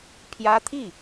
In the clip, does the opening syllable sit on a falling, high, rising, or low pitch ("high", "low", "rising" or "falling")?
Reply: high